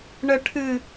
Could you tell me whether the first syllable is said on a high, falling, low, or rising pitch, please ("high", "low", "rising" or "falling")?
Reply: high